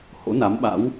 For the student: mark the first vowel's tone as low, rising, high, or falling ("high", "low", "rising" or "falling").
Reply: rising